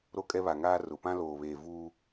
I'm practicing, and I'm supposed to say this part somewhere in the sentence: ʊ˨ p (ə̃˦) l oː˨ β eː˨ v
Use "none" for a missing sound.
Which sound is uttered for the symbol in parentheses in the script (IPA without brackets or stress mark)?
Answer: ã˦